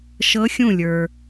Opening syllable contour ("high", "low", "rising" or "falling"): rising